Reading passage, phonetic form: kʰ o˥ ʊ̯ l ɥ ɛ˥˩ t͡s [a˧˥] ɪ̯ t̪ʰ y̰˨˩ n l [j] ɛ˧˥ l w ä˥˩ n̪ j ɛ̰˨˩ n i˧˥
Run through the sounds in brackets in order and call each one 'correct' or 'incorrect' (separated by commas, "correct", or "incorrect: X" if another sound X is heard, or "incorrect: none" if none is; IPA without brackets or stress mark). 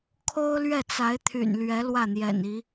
correct, incorrect: ɥ